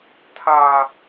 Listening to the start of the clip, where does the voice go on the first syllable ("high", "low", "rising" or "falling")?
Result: high